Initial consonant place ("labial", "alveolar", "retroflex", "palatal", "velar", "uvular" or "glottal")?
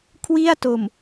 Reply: velar